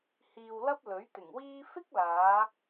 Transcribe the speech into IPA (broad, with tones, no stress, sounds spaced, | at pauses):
h iː˧ w l ɐ˥ p̚ l ɵ˨˥ ɥ t̪ ɪ˨˩ ŋ w iː˥ f ɪ˥ k̚ l aː˨˧